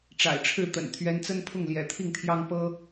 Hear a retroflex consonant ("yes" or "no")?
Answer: yes